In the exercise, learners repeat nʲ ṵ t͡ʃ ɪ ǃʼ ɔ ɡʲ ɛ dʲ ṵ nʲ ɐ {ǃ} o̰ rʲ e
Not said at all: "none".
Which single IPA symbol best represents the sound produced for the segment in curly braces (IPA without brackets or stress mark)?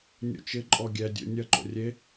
ǃ